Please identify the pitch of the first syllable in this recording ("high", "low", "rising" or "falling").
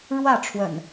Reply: falling